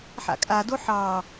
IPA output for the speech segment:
ħ a̰ kʼ a d o ħ ɑ

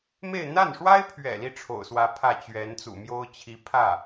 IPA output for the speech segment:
m e˥˧ ɪ̯ n̪ a˥˩ n ʂ w a˥ ɪ̯ pʰ ɥ ɛ̰˨˩ l i˥˩ ʈ͡ʂʰ o̰˨˩ ʊ̯ s w ä˧˥ pʰ ä˥˩ t͡ɕ ɥ ɛ˧˥ n t͡s ṵ˨˩ m j o˥ ʊ̯ t͡ɕʰ i˧˥ pʰ ä˥˩

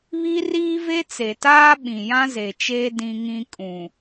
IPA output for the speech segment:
β i˦ r iː˦ v e˦ t͡s e˨ t aː˦ ɓ ĩ˨ j ã˦ z e˨ t͡ʃ eː˦ d ĩ˦ ŋ ĩ˦ kʼ ũ˨

